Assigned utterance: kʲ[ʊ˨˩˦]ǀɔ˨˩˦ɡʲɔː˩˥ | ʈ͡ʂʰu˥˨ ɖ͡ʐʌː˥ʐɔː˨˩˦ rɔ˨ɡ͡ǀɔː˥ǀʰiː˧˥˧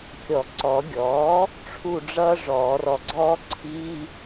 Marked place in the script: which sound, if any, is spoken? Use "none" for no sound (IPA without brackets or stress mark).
ɔ˨˩˦